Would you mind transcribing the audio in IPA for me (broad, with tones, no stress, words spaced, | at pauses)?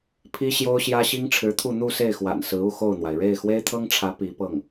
pʰi˥ɕjo˥ʊ̯ɕjä˥ ɕi˥ŋʈ͡ʂʰɻ̩˧˥t̪ʰu˥˧ n̪u˥˧se˥˩ɪ̯xwa̰˨˩n sɹ̩˧˥u˥˧xo˥˩ʊ̯n̪wa˩ɪ̯ ɻe˥˩ɪ̯xwe˥ɪ̯t̪ʰɤ˥ŋʈ͡ʂʰä˧˥ pi˧˥pɤ˥˩ŋ